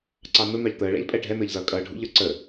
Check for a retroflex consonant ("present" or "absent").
present